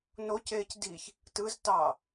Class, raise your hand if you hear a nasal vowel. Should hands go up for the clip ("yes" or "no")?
no